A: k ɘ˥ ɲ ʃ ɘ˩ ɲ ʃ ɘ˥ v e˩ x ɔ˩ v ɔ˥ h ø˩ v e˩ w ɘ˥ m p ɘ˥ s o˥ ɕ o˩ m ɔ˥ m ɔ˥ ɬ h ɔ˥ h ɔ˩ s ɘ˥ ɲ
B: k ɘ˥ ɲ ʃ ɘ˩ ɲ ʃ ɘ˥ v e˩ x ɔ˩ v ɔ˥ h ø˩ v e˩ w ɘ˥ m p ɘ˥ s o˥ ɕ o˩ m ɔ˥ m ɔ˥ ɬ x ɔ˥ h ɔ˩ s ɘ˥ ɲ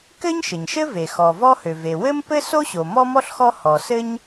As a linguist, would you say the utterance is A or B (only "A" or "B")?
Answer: B